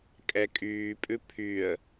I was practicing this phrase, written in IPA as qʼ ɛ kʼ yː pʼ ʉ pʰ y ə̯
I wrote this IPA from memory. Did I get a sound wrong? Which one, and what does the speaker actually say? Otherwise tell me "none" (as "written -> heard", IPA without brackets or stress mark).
qʼ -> kʼ